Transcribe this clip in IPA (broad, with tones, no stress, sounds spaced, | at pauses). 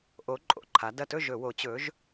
ʔ o˩˧ ǃʼ o̰˨˩ ǃʰ a˩˧ d ɐ˨˩ t ɵ˥˩ ʒ ɵ˧˩˧ w o˩˧ t͡ɕ ɵ˩˧ ʒ